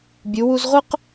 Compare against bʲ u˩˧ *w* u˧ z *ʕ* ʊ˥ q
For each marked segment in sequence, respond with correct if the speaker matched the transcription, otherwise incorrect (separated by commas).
correct, incorrect